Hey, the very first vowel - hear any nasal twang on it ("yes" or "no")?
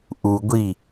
no